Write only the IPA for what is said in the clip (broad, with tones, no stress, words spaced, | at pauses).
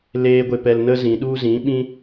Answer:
leː˦ɡʷe˧pɛ˧lnə˦ zĩ˨ɗu˦ zĩ˨˦ɓĩ˦